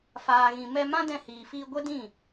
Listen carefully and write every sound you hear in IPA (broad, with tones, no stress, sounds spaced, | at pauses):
f aː˨ ɣ ĩ˨ m ɛ˧ m ã˦ d ɛ̃˧ h iː˨ f iː˧ ɡʷ ɛ˦ d ĩ˦˨